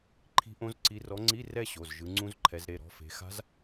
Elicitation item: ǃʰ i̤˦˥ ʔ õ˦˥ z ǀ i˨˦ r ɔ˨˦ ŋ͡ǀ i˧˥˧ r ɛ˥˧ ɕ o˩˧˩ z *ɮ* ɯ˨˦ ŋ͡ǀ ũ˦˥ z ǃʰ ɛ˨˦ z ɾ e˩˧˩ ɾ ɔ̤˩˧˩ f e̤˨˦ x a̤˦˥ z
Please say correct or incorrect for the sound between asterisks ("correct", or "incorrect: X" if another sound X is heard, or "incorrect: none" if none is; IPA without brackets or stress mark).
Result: incorrect: ʒ